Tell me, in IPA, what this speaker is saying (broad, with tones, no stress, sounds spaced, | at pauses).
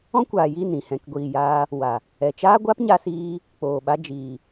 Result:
ɔ̃˦ kʷ aː˨ j i˦˨ n ĩ˦˨ h ɛ̃˨ k ɡʷ iː˨ j aː˧ | w a˨ | ɛ˨ t͡ʃ aː˦ ɡʷ a˦ p ɲ a˧ s iː˧ | k͡p oː˨ ɓ a˧ d͡ʒ iː˨